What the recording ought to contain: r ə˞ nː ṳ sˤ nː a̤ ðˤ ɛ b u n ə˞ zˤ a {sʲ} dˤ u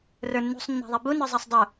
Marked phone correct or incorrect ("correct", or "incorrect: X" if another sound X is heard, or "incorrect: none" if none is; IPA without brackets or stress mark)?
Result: incorrect: sˤ